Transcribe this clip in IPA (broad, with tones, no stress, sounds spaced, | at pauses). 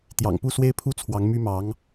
t̪ j ɑ̰˨˩ ŋ p u˥˩ s w e˥ ɪ̯ pʰ u˥ t͡sʰ w ɑ˧˥ ŋ m y˥ m ɑ˧˥ ŋ